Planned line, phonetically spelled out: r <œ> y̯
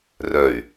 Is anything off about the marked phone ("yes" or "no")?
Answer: no